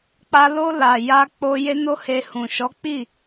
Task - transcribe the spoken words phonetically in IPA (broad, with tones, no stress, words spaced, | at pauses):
k͡pa˧lo˧la˨ ja˧k͡po˧ je˦no˦he˧ hũ˨ʃɔ˨˦k͡pi˦˨